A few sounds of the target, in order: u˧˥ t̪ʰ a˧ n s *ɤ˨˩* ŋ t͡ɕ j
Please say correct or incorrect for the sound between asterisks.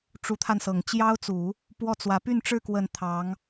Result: correct